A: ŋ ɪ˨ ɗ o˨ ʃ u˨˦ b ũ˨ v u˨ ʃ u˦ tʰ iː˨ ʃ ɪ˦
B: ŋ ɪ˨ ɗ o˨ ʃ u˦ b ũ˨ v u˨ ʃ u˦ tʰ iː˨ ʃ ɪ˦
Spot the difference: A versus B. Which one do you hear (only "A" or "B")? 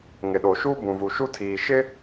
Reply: B